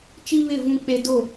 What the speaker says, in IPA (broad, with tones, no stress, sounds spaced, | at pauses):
t͡ʃ i˦ β ɪ˦˨ v ũ˦ k͡p e˦ d o˦˨